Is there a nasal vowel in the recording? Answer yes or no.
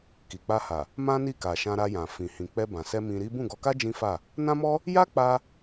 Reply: yes